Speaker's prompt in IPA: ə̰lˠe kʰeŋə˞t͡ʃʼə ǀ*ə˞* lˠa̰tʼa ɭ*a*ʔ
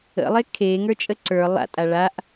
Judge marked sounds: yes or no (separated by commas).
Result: yes, yes